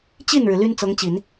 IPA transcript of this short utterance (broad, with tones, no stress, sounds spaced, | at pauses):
t͡ɕ i˥˩ n ɻ ɻ̩˩ l y˥ n t͡s ɤ˧˥ ŋ t͡ɕ i˨˩˦ n